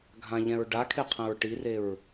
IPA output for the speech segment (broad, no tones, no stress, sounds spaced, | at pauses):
ɡʱ ã ʎ ɛ̃ ɹ ɖ a kʰ e qʰ ɛ̃ ɹ ʈ i r e ɹ